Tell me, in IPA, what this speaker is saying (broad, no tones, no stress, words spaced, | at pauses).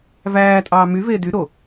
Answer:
væː tʼɑːmyveː dy ɾo